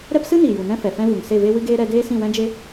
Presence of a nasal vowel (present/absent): present